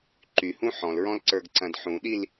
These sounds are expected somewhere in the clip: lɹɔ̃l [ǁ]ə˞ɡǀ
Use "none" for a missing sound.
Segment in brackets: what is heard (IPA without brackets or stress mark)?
ǀ